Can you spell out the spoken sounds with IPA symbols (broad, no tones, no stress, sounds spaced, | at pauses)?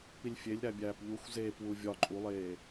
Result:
p i lʲ fʲ e lʲ ɾ æ bʲ æː p ʎ u xʷ z eː p w u vʲ ɒ ǃʼ u lˠ eː